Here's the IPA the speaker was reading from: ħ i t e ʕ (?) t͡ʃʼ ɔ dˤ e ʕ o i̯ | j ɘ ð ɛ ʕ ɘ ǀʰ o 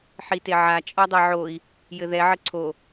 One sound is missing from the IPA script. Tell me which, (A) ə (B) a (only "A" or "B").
B